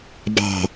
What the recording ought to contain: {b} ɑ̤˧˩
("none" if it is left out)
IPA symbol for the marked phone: b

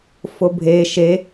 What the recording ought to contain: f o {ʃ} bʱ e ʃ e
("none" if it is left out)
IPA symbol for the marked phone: none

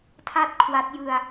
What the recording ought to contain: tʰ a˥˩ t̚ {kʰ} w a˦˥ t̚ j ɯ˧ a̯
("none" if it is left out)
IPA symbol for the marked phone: kʰ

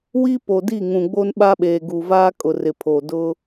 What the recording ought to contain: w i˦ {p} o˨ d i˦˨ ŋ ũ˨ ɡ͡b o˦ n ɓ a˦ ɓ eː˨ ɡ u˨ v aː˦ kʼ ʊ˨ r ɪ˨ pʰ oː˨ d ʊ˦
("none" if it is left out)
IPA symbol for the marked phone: p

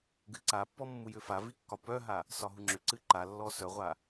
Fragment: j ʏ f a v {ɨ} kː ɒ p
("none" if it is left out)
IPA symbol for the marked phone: i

